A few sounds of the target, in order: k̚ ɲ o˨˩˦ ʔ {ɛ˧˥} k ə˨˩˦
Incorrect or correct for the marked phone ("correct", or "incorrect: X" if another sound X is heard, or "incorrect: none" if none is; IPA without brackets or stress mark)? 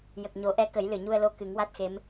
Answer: correct